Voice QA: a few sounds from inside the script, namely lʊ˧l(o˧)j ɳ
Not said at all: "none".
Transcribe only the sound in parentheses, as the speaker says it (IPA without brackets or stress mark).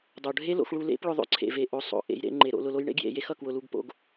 o˦